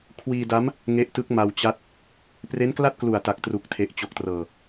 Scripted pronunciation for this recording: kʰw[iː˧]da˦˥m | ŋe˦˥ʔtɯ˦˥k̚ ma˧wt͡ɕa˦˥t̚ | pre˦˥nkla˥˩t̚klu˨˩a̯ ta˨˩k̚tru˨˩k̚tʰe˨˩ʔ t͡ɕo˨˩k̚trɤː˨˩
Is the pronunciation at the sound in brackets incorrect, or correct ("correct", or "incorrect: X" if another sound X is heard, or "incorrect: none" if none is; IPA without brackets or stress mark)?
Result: correct